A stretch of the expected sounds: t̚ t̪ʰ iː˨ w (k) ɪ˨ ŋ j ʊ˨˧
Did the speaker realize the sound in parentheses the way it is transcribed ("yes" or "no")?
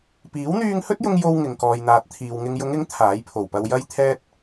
no